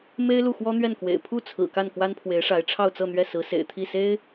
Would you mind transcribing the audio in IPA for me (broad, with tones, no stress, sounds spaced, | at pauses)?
m e˥ ɪ̯ l u˥˩ x w ɔ˥ n̪ ɥ ɛ˥˩ n k w ḛ˨˩ ɪ̯ pʰ u˥˩ t͡sʰ ɹ̩˨˩ k a˥˩ n k w a˥ n pʰ w e˧˥ ɪ̯ ʂ a˧˥ ɪ̯ ʈ͡ʂʰ ɑ˥˧ ʊ̯ t͡s ɤ˥˧ n̪ ɥ ɛ˥˩ s ɹ̩˧˥ s ḛ˨˩ ɪ̯ t̪ʰ i˥˩ s e˥ ɪ̯